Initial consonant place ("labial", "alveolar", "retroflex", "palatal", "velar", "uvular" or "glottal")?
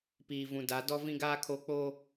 labial